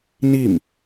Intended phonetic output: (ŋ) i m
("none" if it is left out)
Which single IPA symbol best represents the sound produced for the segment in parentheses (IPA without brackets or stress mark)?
n